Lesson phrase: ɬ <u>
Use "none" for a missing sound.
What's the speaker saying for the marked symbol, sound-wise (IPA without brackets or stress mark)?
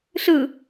ɯ